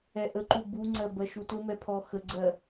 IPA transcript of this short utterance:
ɛ ʔ ə ǃ u b u ŋ͡ǀ ɜ b ɜ ʃ u t ʊ m ɛ pʰ ɔ x ə ɡ͡ǀ ɜ

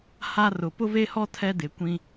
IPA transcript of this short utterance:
h a˦ r ʊ˨ p ʊ˦ v e˦ h ɔ˦ tʰ ɛ˦ d ɪ˨˦ kʷ ĩ˦

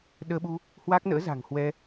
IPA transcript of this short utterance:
ɗ əː˧ ɓ u˧ | h w aː˦˥ k̚ n ə̰ː˧˥ z a̤˨˩ ŋ h w ɛ˧

